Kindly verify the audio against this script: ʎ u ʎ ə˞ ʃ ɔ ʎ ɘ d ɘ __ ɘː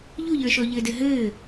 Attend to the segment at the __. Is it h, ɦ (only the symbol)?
ɦ